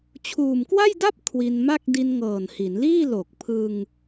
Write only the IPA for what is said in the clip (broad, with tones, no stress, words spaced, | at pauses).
t͡ɕʰuː˨˩mkwa˥˩jda˥˩p̚ kʰwi˧nma˥˩k̚ di˧nŋɤː˨˩nhi˩˦nliː˥˩ lo˨˩k̚pʰɯ˧ŋ